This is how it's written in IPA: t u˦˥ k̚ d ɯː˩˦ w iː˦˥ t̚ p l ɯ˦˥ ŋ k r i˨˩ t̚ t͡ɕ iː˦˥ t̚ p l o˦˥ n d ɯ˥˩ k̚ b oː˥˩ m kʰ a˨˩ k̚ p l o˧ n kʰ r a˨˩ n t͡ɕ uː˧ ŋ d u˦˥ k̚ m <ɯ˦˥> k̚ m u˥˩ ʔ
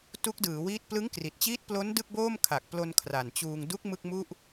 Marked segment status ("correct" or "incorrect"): incorrect